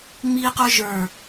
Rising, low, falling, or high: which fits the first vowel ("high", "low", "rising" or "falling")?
high